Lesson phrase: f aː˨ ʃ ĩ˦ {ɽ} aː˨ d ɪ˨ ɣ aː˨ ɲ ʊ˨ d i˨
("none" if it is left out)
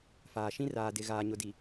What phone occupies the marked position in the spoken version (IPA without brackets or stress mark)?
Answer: r